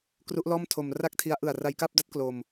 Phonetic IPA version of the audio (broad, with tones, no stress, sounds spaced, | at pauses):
k r u˦˥ ʔ l ɔː˥˩ m tʰ o˧ m r a˥˩ k̚ tʰ i˦˥ a̯ ʔ ɯ˨˩ a̯ r a˧ j k a˥˩ p̚ d a˦˥ t̚ k l o˧ m